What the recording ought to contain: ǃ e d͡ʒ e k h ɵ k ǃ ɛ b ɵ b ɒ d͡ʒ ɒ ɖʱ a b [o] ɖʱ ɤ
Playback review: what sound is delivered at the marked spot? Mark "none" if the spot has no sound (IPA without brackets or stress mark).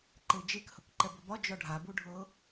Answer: u